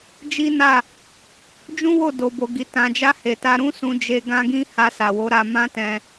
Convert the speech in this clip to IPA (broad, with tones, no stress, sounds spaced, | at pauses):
d͡ʒ i˦ n a˦˨ | d͡ʒ ũ˦ w o˦˨ d o˨ b o˨ ɡ i˨ t ã˨ d͡ʒ a˧ h e˨ t a˧ ɾ ũ˦ s ũ˧ d͡ʒ e˧ ɡ ã˦ ɡ ĩ˦ h a˧ s a˨ w o˨˦ ɾ a˧ m ã˦ t ɛ̃˧